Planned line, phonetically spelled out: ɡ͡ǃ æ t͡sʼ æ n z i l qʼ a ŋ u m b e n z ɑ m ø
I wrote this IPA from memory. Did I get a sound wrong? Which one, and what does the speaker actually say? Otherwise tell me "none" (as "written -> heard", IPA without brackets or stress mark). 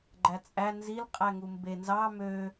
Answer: a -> æ